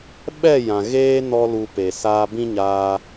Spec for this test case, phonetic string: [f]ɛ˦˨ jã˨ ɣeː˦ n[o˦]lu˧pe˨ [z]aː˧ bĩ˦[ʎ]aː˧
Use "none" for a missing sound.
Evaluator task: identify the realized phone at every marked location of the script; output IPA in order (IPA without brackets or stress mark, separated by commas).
ɓ, ɔ˦, s, ɲ